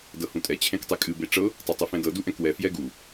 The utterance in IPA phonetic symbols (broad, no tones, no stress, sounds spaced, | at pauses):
d ɤ h ũ tʼ ɛ t͡ɕʰ ẽ k tˤ e kʼ ɨ b e ʈ͡ʂ ɤ | tˤ ɤ tˤ ɨ f ɛ̃ d ɤ d u ʔ ɛ̃ k w ɛ f j ɛ ɡ u